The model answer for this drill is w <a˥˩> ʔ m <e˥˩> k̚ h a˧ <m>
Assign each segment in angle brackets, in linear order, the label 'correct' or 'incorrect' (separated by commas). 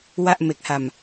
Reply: correct, incorrect, correct